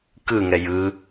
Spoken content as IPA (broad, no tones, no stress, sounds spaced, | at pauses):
k ɯ ŋ ɛ j ɯ